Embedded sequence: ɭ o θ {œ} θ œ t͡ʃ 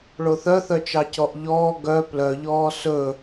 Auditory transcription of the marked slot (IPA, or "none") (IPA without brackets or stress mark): œ